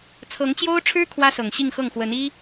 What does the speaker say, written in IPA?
t͡sʰɤ˧˥ŋt͡ɕjo˥ʊ̯ʈ͡ʂʰɻ̩˥ kʰwä˥sɤ˨˩ŋ ɕi˥˧ŋxɤ˥˩ŋ xwə˧˥ni˥

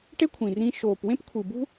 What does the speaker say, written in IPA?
ʈe˦kʷʰĩ˨rĩ˧ ʃoː˨pwẽ˦p kʷʰɯ˨bṳ˦

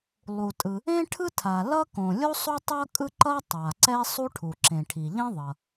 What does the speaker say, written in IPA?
lˠu˩tʼɯ˩ | ẽ˥ʈʰɯ˥ tʰa˩ lʌ˥ kõ˩ lʲo˥sˤo˥ tˤʌ˥kʼɯ˥ ǃʌ˥tˤa˩ ǀɛ˥sˤu˥ʈʰu˩ ǁẽ˩ʈʰi˩ʎẽ˥ðˤʌ˩

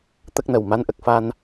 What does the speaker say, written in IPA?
t̪ə˦˥k̚nə˨˩w ma˧˥nʔə˨˩k̚fa˧n

